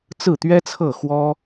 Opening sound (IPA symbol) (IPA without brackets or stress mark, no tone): t͡s